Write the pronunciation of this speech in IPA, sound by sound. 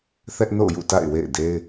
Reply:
θ ɛ˦ ʔ n o̰˦˨ ʊ̯ j ṵ˦˨ t a̰˦˨ ɪ̯ w ḛ˦˨ ɪ̯ d e˦ ɪ̯

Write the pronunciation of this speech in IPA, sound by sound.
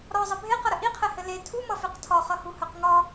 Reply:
ɾ ɒ zˤ ɘ bʱ e q ʌ ɾ ə ʔ i qʰ ɛ h ɘ l e tʰ u m ʌ f e q tʰ ɒ χ ʌ h u h œ q ŋ ɒ

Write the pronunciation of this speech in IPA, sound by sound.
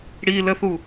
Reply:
ɽ i l ə θ u

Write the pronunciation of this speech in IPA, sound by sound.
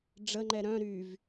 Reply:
ɖ͡ʐ ə ŋ͡ǃ ɛ ɾ œ̃ ɾ y v

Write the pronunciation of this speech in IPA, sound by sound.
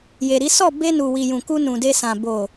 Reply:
j e˨ ɾ i˨˦ s ɔ˦˨ b e˧ n u˨ w i˨ j ũ˨ k u˧ n ũ˨ d e˧ s ã˨ b o˨

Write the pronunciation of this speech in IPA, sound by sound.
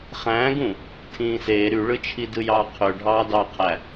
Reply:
χ æ̃ː ɡ ũ | tʰ ĩː s eː ɾ y ɭ ɯ t͡ʃʰ i d ɯ j ɑː qʰ ø ɖʱ ɑː d ɑ qʰ æ

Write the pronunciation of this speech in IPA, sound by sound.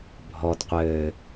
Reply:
bʱ ɔ d qʷ ɘː

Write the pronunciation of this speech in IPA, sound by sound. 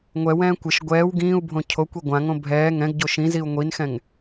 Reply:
ŋʷ ɛ w ɛ̃ː kʷ ɪ ʃ ɡʷ ɛː w ɡ ĩː u̯ bʱ õ cʰ o kʷ i ɡʷ ã ŋ õ bʱ ɛː ŋ ɛ̃ ɡ ɟ o ʃ ĩ z i u̯ ŋʷ i n x ɛ̃ ŋ

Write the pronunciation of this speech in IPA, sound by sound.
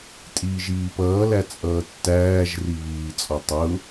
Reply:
tʼ iː ʒ iː p ʌː l æ t͡sʼ ʌː tː æː ʒ r i β iː t͡sʼ ɔ tˤ ʊ

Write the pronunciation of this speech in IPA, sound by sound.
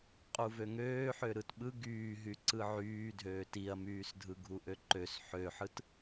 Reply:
qʼ u v ø ŋ øː ħ ø ɾ ɯ t ɓ ɯ ɡ yː ɦ y ǀ ɯ ʕ yː dʱ øː t i ɐ̯ m yː s dʱ ɯ ɡʱ u ʔ ø ǃ ø s ħ ø ħ ɯ t

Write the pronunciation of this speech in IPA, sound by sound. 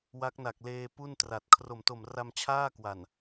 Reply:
w a˦˥ k̚ n a˨˩ k̚ l eː˧ p u˥˩ n t r a˨˩ t̚ kʰ r o˨˩ m t o˨˩ m r a˧ m t͡ɕʰ aː˥˩ k w a˨˩ n

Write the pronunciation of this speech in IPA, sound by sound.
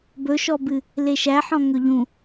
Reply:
b ɵ ʃ ɔ b ɨ | l e ʃ æ ħ ɔ̃ ŋ ɵ ʎ ũ

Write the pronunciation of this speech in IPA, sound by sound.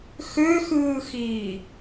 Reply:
x ø x ɯː x iː

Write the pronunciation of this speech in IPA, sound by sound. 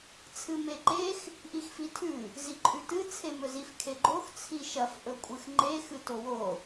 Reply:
t͡sʰ ɨ m e ǃ e x | ʔ i x f i tʰ ʉ | z i ǃʼ ʉ t ɨ t͡sʰ e m ɵ z i f kʰ e ɡ͡ǃ o x t͡sʰ i ʃ ɐ f ʔ ɵ kʷʼ ɨ x ŋ͡ǃ e x ɨ t o w o

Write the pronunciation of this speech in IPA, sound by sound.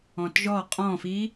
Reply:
ɔ̃ t ʒ ɔ qʼ ɔ̃ f i

